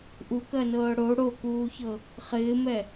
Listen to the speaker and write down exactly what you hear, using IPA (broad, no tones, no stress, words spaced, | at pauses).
ʔukɜnɤː ɽo ɽokuːçɤ | χɪːmɛ